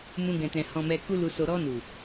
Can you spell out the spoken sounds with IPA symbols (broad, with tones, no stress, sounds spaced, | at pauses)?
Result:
m ũ˧ ɡ ɛ̃˨ t ɛ̃˨ h ɔ̃˨ m ɛ˨ k u˧ l u˨ s o˨ ɾ ɔ˧ n u˨